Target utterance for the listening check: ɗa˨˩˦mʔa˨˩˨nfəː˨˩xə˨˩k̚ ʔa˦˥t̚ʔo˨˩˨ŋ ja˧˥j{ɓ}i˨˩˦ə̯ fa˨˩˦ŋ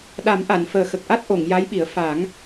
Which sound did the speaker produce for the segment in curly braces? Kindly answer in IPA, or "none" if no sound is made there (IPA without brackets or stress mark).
ɓ